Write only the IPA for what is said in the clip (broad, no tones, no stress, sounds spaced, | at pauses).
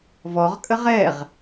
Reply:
v ɔ ʁ kʼ ə ʁ ɛ ʁ